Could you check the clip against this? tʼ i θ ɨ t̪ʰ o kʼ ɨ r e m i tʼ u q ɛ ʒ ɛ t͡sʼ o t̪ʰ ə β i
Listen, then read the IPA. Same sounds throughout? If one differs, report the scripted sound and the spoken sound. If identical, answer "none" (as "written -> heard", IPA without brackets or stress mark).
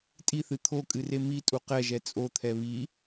ə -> ɛ